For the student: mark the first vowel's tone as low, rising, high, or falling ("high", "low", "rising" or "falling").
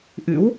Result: rising